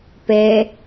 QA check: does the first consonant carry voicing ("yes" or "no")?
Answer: no